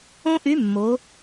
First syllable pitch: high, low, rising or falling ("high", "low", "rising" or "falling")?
high